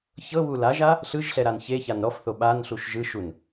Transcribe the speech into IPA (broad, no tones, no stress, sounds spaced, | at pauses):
ç ɤ β u l a ʒ a | ɬ ɯ ʒ ɬ ɛ ɾ a n ç e ç a n ɾ ɔ f θ o ɓ a n ɬ u ʃ ʒ ɯ ʃ u n